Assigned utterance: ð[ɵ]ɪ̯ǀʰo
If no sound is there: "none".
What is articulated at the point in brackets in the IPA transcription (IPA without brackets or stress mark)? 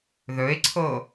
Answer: ɵ